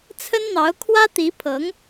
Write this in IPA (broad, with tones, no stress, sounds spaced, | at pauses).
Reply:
t͡sʰ ə˥ n n̪ ɑ˧˥ ʊ̯ kʰ w ä˥ t̪ i˧˥ pʰ ɤ˧˥ ŋ